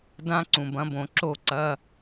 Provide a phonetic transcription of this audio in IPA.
dã˦˥ ǀũ˩bɐ̃˩˥bõ˩ ǁo˧˩ǀɐ˩˧˩

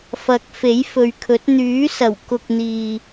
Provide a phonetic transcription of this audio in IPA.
fɐ˨˥k̚fe˨˥j fɵ˨ɥkʰɵ˨˥t̚ n̪yː˨˥sɐ˨˩wkʊ˨k̚ n̪iː˨

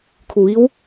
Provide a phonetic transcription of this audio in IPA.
kʰu˩ʋi˧˥w

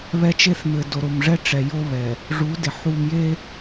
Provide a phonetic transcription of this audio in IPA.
βɛ˦t͡ʃe˦θ mɘ˨do˨ɾo˨mʐɛ˦ ʈ͡ʂɛ˨jo˦βɛ˨ | ʐu˨˦dɪ˨ ħu˨mje˦

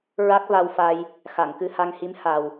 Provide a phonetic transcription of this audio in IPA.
ɹa˦˥k̚va˧wfa˧j | xa˨˩˨ŋkɨ˧ha˧ŋhi˧˥m ha˨˩w

